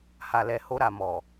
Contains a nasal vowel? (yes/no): no